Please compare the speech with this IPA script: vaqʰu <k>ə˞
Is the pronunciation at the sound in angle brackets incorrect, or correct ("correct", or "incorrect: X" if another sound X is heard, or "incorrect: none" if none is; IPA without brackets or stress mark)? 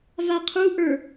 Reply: incorrect: ʔ